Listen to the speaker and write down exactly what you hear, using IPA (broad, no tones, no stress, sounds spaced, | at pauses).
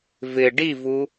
v ɪ ɖ i v u